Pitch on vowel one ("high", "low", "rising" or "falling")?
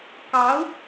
rising